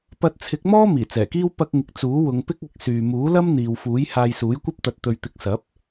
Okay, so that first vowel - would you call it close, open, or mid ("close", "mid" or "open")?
open